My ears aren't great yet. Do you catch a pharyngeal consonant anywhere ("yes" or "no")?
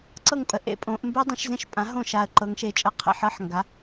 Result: yes